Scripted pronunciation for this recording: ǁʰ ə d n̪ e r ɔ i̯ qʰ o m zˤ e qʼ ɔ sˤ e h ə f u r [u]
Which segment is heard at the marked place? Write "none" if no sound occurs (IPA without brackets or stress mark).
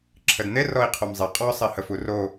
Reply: o